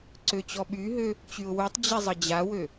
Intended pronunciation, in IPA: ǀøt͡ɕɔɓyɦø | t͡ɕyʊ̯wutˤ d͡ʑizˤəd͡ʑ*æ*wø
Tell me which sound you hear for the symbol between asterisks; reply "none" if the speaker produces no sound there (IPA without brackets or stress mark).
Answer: a